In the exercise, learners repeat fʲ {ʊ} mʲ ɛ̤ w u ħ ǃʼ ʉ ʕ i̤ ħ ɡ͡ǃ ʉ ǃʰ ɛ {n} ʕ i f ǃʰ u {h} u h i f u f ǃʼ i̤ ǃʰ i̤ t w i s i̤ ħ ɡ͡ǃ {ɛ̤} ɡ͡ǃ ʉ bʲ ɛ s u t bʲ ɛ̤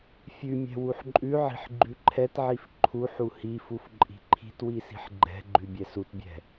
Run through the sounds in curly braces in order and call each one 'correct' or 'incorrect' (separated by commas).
incorrect, incorrect, incorrect, correct